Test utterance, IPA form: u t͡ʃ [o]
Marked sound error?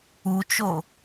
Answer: no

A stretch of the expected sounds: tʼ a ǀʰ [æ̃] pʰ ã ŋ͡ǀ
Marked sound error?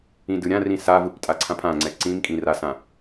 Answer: yes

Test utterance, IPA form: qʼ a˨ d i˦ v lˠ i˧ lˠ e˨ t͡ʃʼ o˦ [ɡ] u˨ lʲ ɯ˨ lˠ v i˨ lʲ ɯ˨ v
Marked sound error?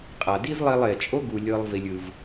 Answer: no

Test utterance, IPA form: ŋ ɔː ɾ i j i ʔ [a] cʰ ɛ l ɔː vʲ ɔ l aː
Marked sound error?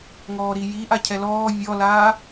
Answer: no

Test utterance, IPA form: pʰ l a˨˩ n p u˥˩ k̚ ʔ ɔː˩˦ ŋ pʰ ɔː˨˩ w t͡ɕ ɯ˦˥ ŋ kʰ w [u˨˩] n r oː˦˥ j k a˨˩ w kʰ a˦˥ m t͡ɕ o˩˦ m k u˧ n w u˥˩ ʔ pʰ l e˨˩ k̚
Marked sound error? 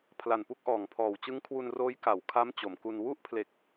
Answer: yes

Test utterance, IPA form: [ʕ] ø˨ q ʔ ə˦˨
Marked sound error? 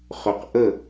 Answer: yes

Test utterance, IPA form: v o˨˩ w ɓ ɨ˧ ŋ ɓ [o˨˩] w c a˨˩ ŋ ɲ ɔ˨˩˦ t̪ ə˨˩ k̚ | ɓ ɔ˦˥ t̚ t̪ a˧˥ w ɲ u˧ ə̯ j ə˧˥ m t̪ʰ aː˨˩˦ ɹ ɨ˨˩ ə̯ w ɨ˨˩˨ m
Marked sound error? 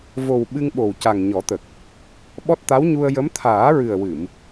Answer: no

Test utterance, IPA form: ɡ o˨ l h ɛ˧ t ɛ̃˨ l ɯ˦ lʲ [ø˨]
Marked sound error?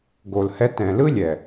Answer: yes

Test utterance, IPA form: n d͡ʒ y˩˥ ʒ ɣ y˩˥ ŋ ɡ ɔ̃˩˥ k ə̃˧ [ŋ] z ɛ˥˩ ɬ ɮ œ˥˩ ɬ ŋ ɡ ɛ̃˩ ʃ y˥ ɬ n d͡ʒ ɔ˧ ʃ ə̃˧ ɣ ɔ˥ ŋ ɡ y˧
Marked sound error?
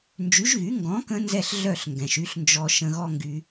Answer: yes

